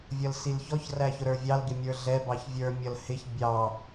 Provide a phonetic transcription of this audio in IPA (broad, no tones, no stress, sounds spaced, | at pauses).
vʲ ʌ l s i l ç ɔ ç r æ ç ʊ ɾ ə˞ vʲ ɑ l ɡ ɪ mʲ ə˞ ɮ ɛ b ɑ ç vʲ ə˞ mʲ ʌ l h ɪ ç bʲ ɑ